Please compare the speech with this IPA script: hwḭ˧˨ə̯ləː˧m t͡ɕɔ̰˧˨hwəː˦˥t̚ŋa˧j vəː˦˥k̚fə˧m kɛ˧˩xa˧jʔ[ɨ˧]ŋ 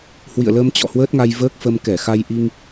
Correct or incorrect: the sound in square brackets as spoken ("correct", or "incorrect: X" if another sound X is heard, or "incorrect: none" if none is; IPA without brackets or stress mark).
incorrect: i˧